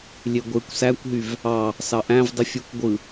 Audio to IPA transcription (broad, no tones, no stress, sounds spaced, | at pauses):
lʲ e ɡʷ e kʷ s æ kʷ ɦ y v | ɑ | s ɑ ʔ æ̃ v dˤ y fʲ o kʷ ɡʷ ɯ